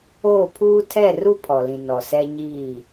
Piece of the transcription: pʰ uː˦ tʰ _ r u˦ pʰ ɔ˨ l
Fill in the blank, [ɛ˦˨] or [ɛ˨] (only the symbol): ɛ˦˨